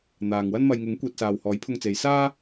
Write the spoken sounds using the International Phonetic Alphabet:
n̪ aː˨ ŋ w ɐ˥ n m ɐ˧ j ŋ ɪ˨˥ ŋ kʷ iː˨ t̚ s aː˨ w h ɔː˨˥ j pʰ ʊ˧ ŋ t͡s e˨˧ j s aː˥

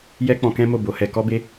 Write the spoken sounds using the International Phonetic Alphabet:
j ɛ˦ k͡p ɔ̃˧ k ɛ̃˦ m o˦˨ b o˨˦ h ɛ˧ k ɔ˦ b e˦

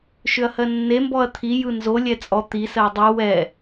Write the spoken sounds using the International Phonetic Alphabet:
ʃ ʏ ɐ̯ h ɜ nː e m b ɔ ɐ̯ t̪ʰ i j ɯ n z o lʲ ɛ t͡sʼ ɔ t̪ i s ɜ dˤ ɯ w ɛ

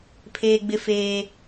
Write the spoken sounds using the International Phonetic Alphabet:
pʰ eː˦ ɡ͡b ɪ˦ f eː˦

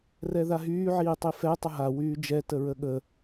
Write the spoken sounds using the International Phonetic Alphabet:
r ɛ ð a ɦ yː ʕ iː tˤ i f ɛ tˤ ə ɦ a w yː d͡ʒ ɛ t ə ɹ ə ɠ ə

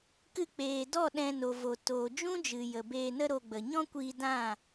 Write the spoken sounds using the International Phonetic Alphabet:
k ɨ˧ k͡p eː˨ d ɔ˦˨ ɗ ɛ̃˧ n o˨ v o˨ t oː˨ d͡ʒ ũ˦ d͡ʒ ɨ˨ j ə˨ b eː˧ n ə˦ ɾ o˧ ɡ͡b ə˨ ɲ ɔ̃˦ kʷ iː˧ d ã˦˨

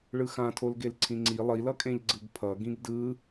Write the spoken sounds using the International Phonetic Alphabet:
ɭ ɯ x ã tʰ o l ɡ e l ǀʰ ĩ ŋ͡ǀ i lˠ i l ʌ kʼ ẽ ʎ ɡ͡ǀ ɯ ɡ pʰ ʌ ɡ ĩ ɡ d ɯ

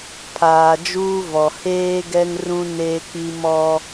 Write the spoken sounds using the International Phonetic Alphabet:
pʰ aː˨ d͡ʒ uː˦ v ɔ˨ h eː˦ ɡ ɛ˦ ŋ r ũ˦ n eː˦ k͡p i˦ m ɔ˦

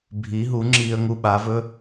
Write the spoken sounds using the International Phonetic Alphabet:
bʱ i˨˥ ɦ u˨˥ ŋ͡ǁ iː˧ ə̯ ŋ u˧˥˧ ɓ a˨˥ v ɵ˧˥˧

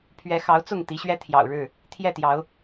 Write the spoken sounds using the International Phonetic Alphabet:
pʰ ɥ ɛ˨˦ x ɑ˨˦ ʊ̯ t͡s ʊ˥˨ ŋ t̪ i˨˦ ɕ ɥ ɛ˦ t̪ʰ j ɑ̰˨˩ ʊ̯ ɻ ɻ̩˥˨ | t̪ʰ j ɛ˥˨ t̪ j ɑ˨˦ ʊ̯

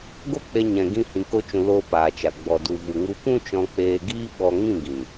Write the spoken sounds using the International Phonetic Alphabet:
ɡ o˦ k͡p e˧ ɲ ɛ̃˨ ɡ ĩ˧ h ĩ˨ k o˧ t͡ʃ ũ˨ l oː˧ p aː˨ t͡ʃ a˨ ɡ͡b ɔ˨ d u˨ v u˨ ŋ u˧ p ũ˦ t͡ʃ ɔ̃˧ k͡p eː˧ ɡ iː˦ ɓ ɔ˧ ŋ ĩ˦˨ ɡ ĩ˨

